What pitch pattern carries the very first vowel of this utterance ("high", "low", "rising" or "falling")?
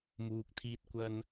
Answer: low